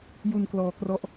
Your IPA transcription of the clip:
ju˧nklɔː˧krɔ˦˥ʔ

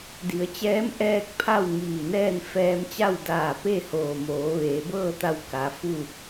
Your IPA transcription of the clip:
di˩˧ə̯t͡ɕɛː˧˥m ʔɛː˥˨k̚pʰa˥˨w ŋiː˧˩nɛː˥˨n fɛː˧mt͡ɕa˥˨w daː˧˩ pe˥˨hoː˧˩ moː˩˧ʋeː˩˧bɤː˥˨t̪a˧w ka˩˧ fu˥˨

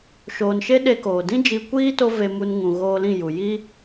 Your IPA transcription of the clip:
ʃoː˨nʃe˦ ɗe˧ koː˨ dĩ˦d͡ʒi˧kʷiː˦ to˦ve˧ mu˧nŋũ˨ɣoː˧lĩ˦˨ ju˨ ji˦

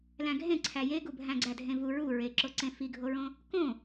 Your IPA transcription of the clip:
læ̃ɡʱẽ ǀʰæjeɡu bʱæ̃ɡ͡ǀædʱẽvu ɹu ɹeǁoǀẽ fiɡʱoɹõ | kõ

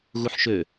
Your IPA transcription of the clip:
ɣuħʃø

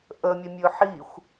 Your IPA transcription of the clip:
ʔəmʲəmʲɵ ħixʷ

